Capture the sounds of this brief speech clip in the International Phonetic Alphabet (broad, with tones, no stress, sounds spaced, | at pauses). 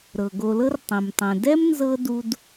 ɾ ɤ˩ ɡ o˨ l ɤ˥ r tˤ ẽ˩ m tˤ ɛ̃˩ d ɛ˥ m n z ɤ˥ d u˦ d